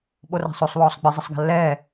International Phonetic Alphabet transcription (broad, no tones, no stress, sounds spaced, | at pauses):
ɓ o r a̤ sˤ o sˤ w ɔː sˤ ɡ͡b ɨ zˤ ə sˤ ɡ a̤ lː ɛː